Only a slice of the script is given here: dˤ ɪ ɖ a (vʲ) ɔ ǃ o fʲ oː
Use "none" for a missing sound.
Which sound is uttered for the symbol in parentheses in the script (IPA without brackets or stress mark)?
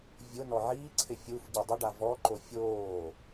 v